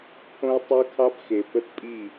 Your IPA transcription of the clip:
pʰ õ˦ ɪ̯ tˤ ə˦ ʊ̯ kʰ ɑ˦ b x e˨ p ə˦ t pʼ i˦˨

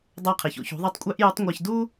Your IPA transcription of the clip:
dˤ æ˧ qʰ i˩ ç o̰˧ ç ṳ˩˧ ðˤ ɯ˧˥ tˤ kʷʼ æ˥ ʔ j u˧˥ tˤ ŋʷ ɑ˧ ç d u˥

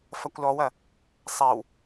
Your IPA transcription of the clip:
f ɐ kʷ l ɔ w ɐ | sˤ ɛ w

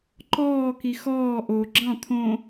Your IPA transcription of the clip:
ǃ ɔː k i x ɔː ʔ o ɡ͡ǁ ɑ̃ t̪ʰ õ

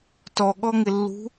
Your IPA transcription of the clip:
t ɔ ɠ ɔ ŋ ɪ lː ṳ

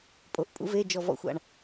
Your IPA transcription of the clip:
pʼ o˩˥ ʔ pʼ ṵ˧˥ v e˧˥˧ d͡ʒ ɔ˦˨ v ɔ̰˦˨ xʷ a̰˦˨ ɳ

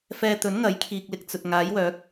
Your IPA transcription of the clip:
f ɛː˧ t̪ ɵ˨˥ n ŋ ɐ˨˥ j kʰ iː˨ k̚ l ɪ˨ k̚ t͡s ɵ˨ t̚ ŋ aː˨˥ j w œː˨˥ k̚

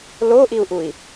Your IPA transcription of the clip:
l o ʔ i u̯ ʔ u i̯

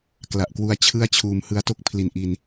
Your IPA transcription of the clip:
k l a˨˩ ʔ k w u˧ a̯ t͡ɕʰ ɯ˥˩ a̯ t͡ɕʰ uː˧ m h ɯ˧ a̯ t o˥˩ k̚ pʰ l i˨˩ n ʔ i˧ n

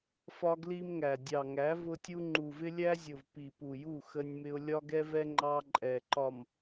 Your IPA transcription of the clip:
f ɒ˦ ɡ l i˦ m ŋ æ˨ dʲ ɑ˨ ŋ æ˨˦ v ʊ˦ tʲ u˦ ŋ͡ǃ u˨ v ɪ˦ lʲ æ˦ zʲ ʊ˨ v p i˨ p u˨ j u˦˨ x ə˦ nʲ m ɪ˦ ʊ̯ lʲ ɒ˦ ɡ ɛ˦ v ɛ˦ ŋ͡ǃ ɑ˦ ǃʼ ɛ˨ ǃ ɒ˨ m

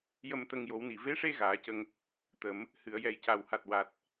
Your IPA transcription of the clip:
j ə˧ m t̪ ə˧ ŋ j o˨˩˦ w n i˨˩ v e˧˥ ʂ e˧ ɣ aː˨˩˦ c ə˧ ŋ | t̪ ə˨˩˦ m | h ɨ˨˩˨ ə̯ j ɛ˨˩ j c a˨˩ w h a˨˩ t̚ w a˨˩ t̚

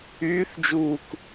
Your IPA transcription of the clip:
yː θ d͡ʒ uː k

